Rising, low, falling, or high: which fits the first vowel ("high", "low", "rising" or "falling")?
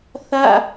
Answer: falling